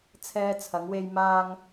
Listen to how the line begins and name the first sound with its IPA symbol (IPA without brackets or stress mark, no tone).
t͡sʰ